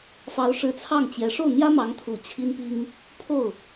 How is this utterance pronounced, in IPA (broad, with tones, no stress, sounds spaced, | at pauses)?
f ɑ˧˥ ʊ̯ ʂ ɻ̩˥˧ t͡sʰ ɑ˥˩ ŋ t͡ɕ j ɛ˧˥ ʂ o˥˩ ʊ̯ n̪ j ä˥ m ɑ˧˥ ŋ t̪ʰ u˨˩ t͡ɕʰ i˥ n p i˥ ŋ | pʰ o˥˩ ʊ̯